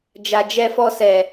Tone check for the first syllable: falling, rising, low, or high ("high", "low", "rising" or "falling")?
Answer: low